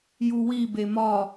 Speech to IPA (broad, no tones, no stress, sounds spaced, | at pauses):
j u w i b e m ɒ